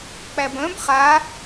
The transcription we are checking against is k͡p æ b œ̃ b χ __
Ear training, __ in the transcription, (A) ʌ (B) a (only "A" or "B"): B